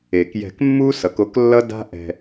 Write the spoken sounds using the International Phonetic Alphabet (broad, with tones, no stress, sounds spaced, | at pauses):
e˨ k j ɛ̤˧ k mː u˦ s ʌ˨˦ k o˦ k lː ʌ˦ d a̤˦ ʔ ɛ̤˧